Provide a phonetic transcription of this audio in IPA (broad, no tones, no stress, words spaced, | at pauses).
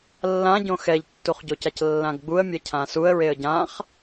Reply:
lːãɟõ xɛʎtːuχɟocac lːãɡɡ͡buə̯ mʲɛcʰãsuə̯ ɹeə̯ɟãχ